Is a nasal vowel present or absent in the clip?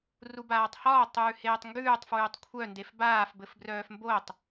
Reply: absent